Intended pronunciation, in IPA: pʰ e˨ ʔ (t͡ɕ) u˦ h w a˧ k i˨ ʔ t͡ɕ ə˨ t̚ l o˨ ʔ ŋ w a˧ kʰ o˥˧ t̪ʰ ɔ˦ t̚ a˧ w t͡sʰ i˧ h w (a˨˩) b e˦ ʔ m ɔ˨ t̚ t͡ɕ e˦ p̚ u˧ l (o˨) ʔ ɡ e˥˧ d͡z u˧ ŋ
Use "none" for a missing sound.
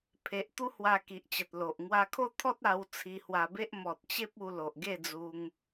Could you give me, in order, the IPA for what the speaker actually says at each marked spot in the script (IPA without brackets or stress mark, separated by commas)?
t̪, a˧, o˨